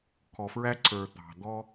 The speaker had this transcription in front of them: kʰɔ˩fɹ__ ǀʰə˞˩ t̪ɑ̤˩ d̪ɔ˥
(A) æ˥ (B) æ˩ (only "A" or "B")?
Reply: A